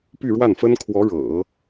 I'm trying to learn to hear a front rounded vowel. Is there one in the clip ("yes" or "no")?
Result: yes